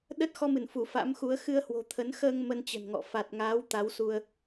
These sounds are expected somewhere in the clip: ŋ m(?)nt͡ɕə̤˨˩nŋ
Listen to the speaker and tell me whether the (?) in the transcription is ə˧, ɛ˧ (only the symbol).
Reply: ə˧